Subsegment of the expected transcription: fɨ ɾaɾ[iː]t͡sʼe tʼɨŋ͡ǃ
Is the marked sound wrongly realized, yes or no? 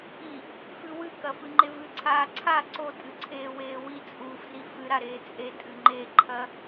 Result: yes